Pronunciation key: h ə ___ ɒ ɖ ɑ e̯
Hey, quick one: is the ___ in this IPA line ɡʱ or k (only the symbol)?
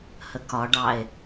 k